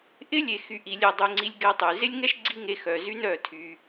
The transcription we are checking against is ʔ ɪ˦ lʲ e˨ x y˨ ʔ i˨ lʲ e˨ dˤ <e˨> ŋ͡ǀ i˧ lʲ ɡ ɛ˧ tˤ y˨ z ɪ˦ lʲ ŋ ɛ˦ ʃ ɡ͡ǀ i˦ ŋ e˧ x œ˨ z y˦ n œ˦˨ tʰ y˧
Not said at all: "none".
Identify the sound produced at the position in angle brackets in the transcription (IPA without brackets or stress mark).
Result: y˨